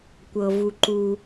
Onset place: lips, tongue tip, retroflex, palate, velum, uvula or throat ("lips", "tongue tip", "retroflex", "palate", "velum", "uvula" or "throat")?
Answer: velum